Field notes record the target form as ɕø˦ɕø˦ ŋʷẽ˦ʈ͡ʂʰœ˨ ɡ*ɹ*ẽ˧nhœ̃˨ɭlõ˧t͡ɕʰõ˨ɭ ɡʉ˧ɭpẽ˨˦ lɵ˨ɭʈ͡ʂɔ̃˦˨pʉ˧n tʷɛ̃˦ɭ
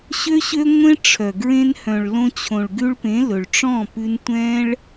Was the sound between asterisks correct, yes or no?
yes